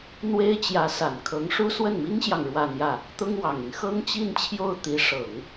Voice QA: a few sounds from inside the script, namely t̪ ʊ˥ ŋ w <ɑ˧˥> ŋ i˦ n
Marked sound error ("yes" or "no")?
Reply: yes